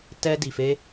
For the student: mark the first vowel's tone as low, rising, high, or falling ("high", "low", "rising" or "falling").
high